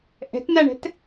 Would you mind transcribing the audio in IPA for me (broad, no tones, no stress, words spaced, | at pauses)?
ʔɛ̤tnaɳɛ̤t